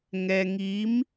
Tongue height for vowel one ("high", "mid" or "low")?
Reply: mid